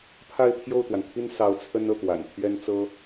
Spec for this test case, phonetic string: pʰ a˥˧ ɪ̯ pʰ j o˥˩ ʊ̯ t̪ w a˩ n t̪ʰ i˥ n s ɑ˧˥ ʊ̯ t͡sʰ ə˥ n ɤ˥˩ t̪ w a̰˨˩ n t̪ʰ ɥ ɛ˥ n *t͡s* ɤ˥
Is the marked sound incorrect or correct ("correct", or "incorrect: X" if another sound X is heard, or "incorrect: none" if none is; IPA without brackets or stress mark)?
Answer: correct